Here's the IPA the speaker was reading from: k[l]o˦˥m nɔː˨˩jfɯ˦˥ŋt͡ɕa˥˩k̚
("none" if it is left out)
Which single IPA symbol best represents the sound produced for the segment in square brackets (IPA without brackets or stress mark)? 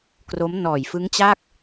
r